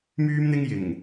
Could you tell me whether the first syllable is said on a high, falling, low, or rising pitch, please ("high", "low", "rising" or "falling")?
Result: high